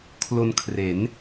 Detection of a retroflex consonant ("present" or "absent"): absent